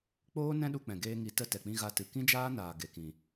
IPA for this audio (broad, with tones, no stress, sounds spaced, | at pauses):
k͡p oː˦ n ɛ̃˦ ɗ u˧ k͡p ɛ̃˨ ɡ eː˧ ŋ i˨˦ t ə˧ t ɛ˨ k͡p ĩ˧ ɣ a˧ t ɨ˨ k ĩ˦ d͡ʒ aː˦ n aː˨ ɡ e˨ k ĩ˨